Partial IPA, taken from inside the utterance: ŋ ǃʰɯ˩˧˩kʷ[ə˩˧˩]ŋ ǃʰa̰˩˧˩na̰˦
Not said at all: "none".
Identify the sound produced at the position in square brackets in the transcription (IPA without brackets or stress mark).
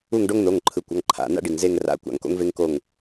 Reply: ʌ˩˧˩